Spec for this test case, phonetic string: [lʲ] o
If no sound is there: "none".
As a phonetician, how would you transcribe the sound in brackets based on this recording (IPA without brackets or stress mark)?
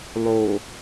lˠ